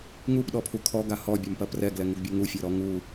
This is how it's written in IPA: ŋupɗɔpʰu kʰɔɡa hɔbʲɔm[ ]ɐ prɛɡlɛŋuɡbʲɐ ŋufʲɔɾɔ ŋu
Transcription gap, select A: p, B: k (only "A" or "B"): A